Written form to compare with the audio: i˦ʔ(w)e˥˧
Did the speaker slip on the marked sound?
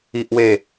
no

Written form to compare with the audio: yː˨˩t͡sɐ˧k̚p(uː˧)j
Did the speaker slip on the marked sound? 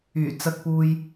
no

